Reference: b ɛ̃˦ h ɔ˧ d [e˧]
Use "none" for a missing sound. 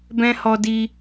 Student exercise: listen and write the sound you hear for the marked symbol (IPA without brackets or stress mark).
i˧